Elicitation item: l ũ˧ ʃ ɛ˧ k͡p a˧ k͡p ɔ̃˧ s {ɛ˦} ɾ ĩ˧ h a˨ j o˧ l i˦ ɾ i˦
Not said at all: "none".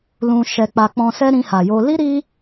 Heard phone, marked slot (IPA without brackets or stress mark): ɛ˦